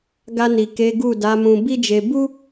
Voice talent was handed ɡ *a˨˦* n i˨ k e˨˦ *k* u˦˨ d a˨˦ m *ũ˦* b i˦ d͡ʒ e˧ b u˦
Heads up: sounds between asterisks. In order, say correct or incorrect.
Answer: incorrect, incorrect, incorrect

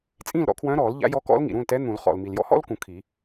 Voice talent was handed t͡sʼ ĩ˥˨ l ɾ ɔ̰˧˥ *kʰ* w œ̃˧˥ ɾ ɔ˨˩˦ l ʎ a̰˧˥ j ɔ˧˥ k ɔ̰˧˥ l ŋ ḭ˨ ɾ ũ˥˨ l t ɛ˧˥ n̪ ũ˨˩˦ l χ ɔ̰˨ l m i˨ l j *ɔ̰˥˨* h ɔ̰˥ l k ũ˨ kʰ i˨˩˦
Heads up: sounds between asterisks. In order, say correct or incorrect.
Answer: correct, incorrect

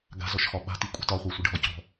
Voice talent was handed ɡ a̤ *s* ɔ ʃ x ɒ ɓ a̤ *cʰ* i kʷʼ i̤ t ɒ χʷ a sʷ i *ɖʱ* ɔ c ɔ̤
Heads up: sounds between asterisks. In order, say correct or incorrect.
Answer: incorrect, incorrect, correct

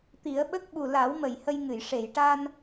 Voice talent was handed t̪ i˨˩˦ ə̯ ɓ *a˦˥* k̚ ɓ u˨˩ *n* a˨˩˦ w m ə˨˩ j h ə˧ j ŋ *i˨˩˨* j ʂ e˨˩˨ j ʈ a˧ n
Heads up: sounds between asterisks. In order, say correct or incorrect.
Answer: incorrect, incorrect, incorrect

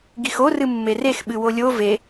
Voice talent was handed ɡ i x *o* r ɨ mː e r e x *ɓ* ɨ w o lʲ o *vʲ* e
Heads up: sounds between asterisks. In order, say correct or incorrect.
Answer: correct, correct, incorrect

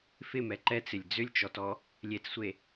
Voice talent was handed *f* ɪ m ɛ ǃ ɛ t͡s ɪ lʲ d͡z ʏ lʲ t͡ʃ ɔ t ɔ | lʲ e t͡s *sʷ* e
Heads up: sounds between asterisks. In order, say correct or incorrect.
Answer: correct, correct

